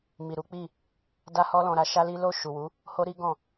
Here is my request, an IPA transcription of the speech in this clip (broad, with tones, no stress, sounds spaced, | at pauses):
m i˨ ɾ u˨˦ k͡p i˦˨ | d a˦ h ɔ˦ l ɔ̃˧ ɾ a˦ ʃ a˦ l i˦ l o˦˨ ʃ u˨ w u˨˦ | h o˦ ɾ i˦ ɡ ɔ̃˦˨